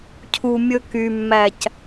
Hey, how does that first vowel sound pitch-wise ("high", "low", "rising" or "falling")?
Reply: low